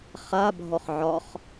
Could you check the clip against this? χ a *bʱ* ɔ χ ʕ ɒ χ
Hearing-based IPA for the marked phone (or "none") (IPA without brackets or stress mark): bʱ